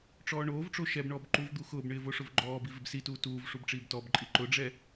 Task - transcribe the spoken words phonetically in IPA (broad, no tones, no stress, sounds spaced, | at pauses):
ʈ͡ʂ ɔː ɳ oː v ʈ͡ʂ o ʃ ɛ b ɳ ɔː b ǃ u v d̪ u x ʊː b ɳ ɪː v o ʂ ʊ v ɡ͡ǃ ɔː b i v ɪ b s i t uː t uː v ʂ u b ʈ͡ʂ iː b t ɔ b ǃʼ i ǃ ʊ ɖ͡ʐ ɛ